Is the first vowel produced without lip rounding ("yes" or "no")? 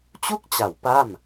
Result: no